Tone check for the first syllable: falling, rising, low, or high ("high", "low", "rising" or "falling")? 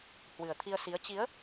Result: low